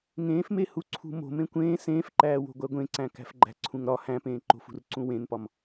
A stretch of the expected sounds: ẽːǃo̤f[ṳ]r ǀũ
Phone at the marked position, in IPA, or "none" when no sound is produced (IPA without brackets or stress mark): ṳ